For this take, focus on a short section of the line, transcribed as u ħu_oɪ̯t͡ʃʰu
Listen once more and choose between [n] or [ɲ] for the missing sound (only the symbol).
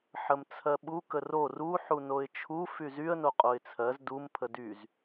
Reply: n